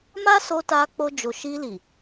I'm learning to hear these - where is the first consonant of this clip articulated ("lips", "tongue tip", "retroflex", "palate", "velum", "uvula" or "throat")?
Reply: lips